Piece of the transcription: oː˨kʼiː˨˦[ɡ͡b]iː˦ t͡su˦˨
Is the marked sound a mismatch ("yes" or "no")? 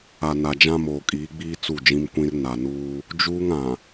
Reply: no